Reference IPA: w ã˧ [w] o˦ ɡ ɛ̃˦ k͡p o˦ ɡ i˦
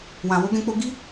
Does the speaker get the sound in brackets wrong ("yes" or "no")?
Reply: no